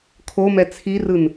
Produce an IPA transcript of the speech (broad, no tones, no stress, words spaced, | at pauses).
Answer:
kʰomɛ t͡sʰirɯn